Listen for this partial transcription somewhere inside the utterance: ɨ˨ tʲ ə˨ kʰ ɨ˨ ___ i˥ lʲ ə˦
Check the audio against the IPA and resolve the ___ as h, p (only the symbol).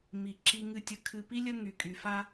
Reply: p